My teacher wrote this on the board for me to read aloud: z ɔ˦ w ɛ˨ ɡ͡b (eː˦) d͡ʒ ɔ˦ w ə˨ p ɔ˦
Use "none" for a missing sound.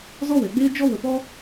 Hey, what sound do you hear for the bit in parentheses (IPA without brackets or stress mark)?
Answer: eː˦